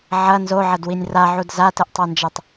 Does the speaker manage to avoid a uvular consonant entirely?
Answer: yes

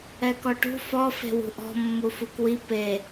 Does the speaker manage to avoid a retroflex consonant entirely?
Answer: no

